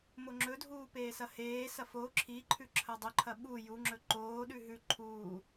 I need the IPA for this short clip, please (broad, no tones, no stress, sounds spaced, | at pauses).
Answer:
m o ŋ͡ǁ ɵ dʱ uː p eː s ɐ h eː s ɐ f o ǁʰ i ǃʰ ʉ ǁʰ ɐ dˤ ɵ ǃʰ ɐ ɓ u j u ŋ͡ǁ ɵ ǃ oː ɗ ʉ ɦ ʉ ǃʰ uː